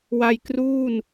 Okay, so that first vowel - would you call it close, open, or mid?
open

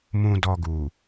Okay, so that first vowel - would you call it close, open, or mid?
close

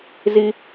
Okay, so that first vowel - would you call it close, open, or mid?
close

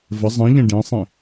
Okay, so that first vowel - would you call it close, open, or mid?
mid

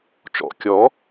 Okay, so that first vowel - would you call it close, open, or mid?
mid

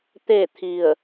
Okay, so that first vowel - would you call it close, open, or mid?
mid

